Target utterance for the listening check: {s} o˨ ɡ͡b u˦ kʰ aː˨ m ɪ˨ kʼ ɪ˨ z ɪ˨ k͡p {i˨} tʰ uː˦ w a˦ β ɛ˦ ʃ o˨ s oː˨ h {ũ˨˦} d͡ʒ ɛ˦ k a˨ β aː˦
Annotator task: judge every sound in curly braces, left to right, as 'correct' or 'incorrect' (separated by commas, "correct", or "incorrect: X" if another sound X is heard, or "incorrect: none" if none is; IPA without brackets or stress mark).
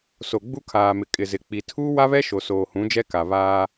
correct, correct, correct